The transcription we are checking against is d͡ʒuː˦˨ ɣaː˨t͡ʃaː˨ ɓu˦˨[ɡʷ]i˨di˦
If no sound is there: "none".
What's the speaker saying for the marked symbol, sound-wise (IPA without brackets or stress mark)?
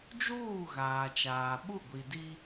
ɡʷ